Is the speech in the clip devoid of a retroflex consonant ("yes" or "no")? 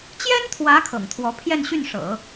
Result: no